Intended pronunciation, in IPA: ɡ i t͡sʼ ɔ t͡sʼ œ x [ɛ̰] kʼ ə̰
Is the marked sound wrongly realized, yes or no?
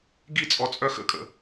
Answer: yes